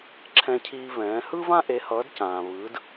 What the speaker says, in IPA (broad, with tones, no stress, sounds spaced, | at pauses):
ǁʰ ɛ̃˧ cʰ iː˧ v ɛ̃ː˩˥ h ɯ˥ v ã˥ ʔ e˩˥ h ʌː˩˥ d c ãː˩ v ɯː˩˥ d